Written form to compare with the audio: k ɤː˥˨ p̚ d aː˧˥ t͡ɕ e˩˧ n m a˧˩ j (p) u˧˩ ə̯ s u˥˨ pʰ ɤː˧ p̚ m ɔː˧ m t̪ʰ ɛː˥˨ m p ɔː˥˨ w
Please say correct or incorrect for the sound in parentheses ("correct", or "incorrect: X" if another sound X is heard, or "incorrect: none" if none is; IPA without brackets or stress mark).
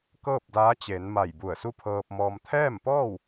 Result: incorrect: b